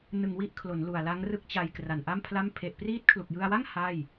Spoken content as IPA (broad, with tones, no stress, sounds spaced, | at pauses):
n ɯ˨˩ ŋ w i˦˥ ʔ kʰ l o˩˦ n l u˨˩ a̯ l a˦˥ ŋ r ɯ˦˥ k̚ t͡ɕ a˧ j k r a˨˩ n ʔ a˥˩ m pʰ l a˥˩ m pʰ e˨˩ ʔ p r iː˦˥ t̚ kʰ l u˨˩ k̚ j ɯ˧ a̯ w a˥˩ ŋ h a˥˩ j